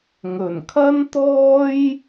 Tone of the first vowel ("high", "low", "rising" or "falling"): low